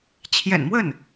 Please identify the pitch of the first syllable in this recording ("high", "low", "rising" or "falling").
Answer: low